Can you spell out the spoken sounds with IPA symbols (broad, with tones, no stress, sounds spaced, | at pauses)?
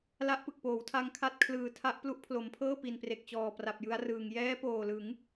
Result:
l a˦˥ ʔ p ɯ˨˩ k̚ p oː˩˦ w tʰ a˧ ŋ kʰ a˦˥ t̚ kʰ l ɯː˨˩ tʰ a˦˥ ʔ p l u˦˥ ʔ pʰ l o˩˦ m pʰ ɤː˥˩ p i˨˩ n p r e˨˩ k̚ t͡ɕ ɔː˨˩ p r a˨˩ p̚ j ɯ˦˥ a̯ r ɯː˨˩ ŋ j ɛː˦˥ p oː˨˩ l ɯ˩˦ ŋ